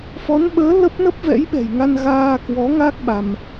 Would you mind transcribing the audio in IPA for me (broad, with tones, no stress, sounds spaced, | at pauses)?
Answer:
f ɔ˨˦ n ɓ əː˨˦ l ə˦˥ p̚ n ə˦˥ p̚ v ɛ̰˧˥ j ɓ ɛ̤˨˩ j ŋ a˧ n ɣ aː˧ k w ɔ˨˦ ŋ a˦˥ k̚ ɓ a˧ m